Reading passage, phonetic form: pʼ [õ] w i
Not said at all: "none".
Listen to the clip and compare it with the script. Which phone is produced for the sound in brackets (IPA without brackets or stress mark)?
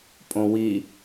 õ